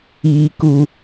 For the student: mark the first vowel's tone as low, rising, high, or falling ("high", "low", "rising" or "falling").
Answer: low